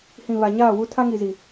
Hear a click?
no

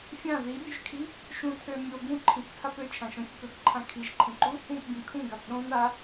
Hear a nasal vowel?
yes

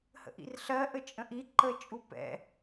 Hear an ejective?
yes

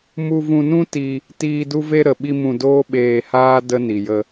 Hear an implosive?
yes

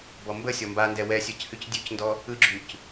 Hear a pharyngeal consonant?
no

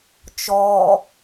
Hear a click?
no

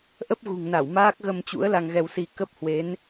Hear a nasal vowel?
no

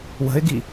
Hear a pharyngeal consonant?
no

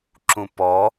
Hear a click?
yes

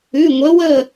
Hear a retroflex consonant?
no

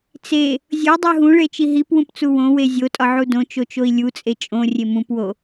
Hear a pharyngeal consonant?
yes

